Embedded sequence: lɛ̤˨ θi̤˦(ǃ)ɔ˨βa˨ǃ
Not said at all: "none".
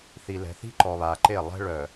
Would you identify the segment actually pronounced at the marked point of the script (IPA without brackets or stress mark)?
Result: ǃ